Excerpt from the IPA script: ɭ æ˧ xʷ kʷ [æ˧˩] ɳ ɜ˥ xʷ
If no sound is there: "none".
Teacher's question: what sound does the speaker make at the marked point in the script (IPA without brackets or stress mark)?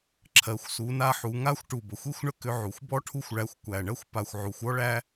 æ˧˩